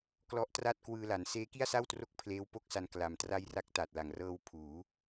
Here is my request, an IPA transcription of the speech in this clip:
k l ɔ˦˥ ʔ t r a˥˩ t̚ k w ɯː˧ l a˩˦ n s eː˦˥ k i˥˩ a̯ s a˥˩ w t r o˦˥ k̚ pʰ l eː˦˥ w p o˥˩ k̚ s a˧ n k l a˨˩ m t r a˦˥ j r a˦˥ k̚ t a˨˩ t̚ l a˩˦ ŋ r ɤː˧ w pʰ uː˩˦

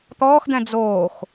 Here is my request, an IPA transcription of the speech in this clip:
t̪ ɔː x d̪ ɛ̃ d͡z oː x

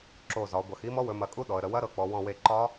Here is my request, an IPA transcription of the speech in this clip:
ǁ o˧˩ z ɒ˩˧ ɡʷ ɐ˩˧ x i˦˥ m ɔ˦˥ w ɵ˩˧ m ɐ˧˩ kʼ u˦˥ ɗ ɔ˩˧ ə̯ ɾ ə˩˧ w ɐ˦˥ ɾ ɤ˩˧ k͡p ɔ˩˧ w ɔ̃˧˩ w e˧˩ ǃ ɒ˦˥

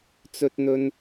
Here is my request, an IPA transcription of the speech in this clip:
t͡s ɵ˥ t̚ n̪ ɵ˥ n

